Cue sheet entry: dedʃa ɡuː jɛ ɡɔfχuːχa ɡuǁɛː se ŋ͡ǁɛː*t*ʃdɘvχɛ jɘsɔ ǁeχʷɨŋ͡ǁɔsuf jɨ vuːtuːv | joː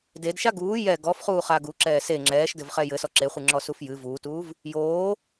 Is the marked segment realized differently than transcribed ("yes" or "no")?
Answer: yes